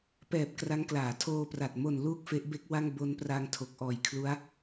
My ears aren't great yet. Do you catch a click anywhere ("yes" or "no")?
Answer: no